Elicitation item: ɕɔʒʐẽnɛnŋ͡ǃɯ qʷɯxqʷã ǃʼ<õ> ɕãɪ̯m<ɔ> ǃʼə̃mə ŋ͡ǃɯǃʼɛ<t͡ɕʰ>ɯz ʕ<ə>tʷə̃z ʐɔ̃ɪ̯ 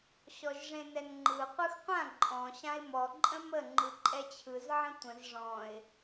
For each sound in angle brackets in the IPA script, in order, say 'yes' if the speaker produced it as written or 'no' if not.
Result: no, yes, yes, no

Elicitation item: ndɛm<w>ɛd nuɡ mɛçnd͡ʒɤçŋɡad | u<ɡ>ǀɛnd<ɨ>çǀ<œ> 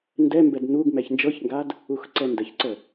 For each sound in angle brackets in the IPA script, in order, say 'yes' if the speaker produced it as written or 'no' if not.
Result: no, no, no, no

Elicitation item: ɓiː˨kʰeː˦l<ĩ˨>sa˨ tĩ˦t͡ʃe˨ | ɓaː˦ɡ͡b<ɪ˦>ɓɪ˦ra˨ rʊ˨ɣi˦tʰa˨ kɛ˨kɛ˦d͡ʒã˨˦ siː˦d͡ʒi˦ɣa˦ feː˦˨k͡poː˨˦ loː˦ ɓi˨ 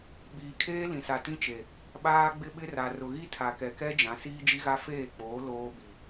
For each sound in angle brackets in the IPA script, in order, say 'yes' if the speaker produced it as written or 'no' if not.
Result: yes, yes

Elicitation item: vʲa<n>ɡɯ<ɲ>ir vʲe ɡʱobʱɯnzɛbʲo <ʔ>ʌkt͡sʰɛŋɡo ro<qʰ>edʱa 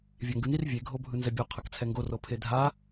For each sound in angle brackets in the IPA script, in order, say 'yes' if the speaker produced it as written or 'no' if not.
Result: no, no, no, no

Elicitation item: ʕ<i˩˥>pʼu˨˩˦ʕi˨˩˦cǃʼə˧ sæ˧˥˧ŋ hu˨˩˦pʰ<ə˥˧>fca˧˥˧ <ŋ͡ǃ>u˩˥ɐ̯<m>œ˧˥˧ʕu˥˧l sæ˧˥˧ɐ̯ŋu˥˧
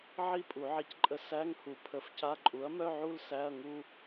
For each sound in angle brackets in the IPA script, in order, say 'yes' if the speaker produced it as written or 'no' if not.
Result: no, no, no, yes

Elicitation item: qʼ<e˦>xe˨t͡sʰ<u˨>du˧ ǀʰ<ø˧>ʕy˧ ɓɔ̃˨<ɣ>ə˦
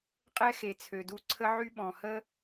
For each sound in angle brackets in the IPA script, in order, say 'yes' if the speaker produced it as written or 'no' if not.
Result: no, no, no, no

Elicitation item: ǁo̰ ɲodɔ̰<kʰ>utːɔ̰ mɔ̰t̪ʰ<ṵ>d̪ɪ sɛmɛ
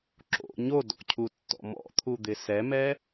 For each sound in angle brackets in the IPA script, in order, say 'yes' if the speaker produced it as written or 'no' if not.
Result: no, no

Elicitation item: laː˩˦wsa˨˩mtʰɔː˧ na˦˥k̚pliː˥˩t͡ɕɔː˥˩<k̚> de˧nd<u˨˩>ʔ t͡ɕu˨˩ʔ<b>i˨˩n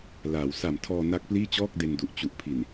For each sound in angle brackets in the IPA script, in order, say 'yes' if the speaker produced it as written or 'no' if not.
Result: yes, yes, no

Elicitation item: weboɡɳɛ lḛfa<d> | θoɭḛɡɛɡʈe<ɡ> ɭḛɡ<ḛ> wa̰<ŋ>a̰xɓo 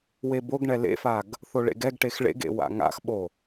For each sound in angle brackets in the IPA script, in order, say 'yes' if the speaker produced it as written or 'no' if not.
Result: no, no, yes, yes

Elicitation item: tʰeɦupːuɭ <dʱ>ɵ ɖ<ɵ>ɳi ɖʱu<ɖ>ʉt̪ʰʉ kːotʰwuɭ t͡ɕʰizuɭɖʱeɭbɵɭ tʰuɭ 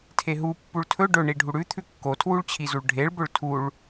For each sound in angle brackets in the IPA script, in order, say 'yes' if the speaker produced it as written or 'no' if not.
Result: no, yes, no

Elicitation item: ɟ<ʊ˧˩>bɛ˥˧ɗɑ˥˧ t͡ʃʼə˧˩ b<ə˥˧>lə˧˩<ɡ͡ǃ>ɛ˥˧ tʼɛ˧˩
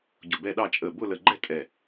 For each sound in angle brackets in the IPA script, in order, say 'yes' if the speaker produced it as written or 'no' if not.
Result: yes, no, yes

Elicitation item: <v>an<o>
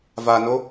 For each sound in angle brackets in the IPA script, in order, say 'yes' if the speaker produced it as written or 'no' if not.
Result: yes, yes

